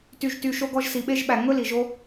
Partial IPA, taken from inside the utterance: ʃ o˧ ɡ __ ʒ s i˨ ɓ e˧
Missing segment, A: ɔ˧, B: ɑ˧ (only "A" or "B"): A